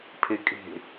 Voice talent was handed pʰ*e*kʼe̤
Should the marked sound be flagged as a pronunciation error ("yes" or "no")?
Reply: no